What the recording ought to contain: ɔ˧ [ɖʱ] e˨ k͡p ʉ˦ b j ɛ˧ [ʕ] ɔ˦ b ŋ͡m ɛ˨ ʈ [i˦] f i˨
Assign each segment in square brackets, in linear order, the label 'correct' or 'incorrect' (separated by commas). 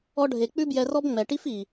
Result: correct, incorrect, correct